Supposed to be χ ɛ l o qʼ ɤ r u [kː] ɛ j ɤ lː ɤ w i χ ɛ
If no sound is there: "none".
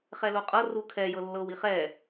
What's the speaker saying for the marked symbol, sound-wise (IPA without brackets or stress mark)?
kʰ